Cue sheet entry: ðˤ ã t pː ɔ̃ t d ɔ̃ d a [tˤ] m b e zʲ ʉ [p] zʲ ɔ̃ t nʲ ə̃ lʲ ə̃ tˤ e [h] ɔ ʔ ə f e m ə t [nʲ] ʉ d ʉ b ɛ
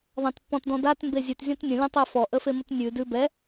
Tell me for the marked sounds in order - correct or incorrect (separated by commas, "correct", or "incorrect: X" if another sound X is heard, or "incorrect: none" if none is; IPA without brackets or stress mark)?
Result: incorrect: t, incorrect: t, incorrect: f, correct